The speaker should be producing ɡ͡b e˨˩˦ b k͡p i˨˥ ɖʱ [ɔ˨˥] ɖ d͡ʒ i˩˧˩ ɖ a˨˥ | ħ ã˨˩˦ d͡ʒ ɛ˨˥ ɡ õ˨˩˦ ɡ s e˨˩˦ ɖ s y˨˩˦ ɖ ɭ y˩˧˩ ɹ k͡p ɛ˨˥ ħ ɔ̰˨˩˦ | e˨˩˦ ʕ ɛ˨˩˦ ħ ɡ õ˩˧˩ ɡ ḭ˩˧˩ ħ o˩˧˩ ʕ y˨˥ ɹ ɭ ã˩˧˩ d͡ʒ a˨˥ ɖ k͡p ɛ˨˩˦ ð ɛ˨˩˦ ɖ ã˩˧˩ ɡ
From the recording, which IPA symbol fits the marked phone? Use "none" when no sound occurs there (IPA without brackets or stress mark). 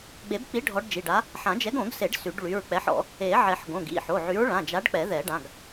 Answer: ɔ˨˥